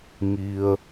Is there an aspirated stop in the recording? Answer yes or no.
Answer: no